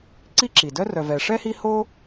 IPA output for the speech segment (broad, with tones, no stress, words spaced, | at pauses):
ǀi˥ǁi˩dœ˥rœ˨ vɛ˨ʂɛ˥hi˦ho˥